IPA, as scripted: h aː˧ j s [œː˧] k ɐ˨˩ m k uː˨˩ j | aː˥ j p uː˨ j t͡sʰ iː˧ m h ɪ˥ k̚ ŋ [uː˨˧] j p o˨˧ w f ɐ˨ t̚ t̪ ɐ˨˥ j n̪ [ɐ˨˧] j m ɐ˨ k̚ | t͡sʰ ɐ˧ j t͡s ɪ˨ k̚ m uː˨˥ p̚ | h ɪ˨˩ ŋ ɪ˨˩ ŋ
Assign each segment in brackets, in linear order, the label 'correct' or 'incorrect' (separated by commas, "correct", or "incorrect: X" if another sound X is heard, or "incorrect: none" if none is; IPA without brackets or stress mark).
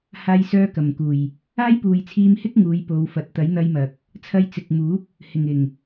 correct, correct, incorrect: ɐ˧